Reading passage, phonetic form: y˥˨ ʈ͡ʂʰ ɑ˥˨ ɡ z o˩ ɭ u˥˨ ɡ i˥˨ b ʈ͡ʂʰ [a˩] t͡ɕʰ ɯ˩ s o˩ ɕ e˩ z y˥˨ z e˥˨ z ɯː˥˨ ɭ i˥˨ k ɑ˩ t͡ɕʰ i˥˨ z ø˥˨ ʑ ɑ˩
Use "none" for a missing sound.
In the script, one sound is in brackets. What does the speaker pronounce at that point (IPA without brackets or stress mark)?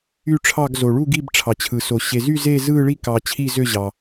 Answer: ɑ˩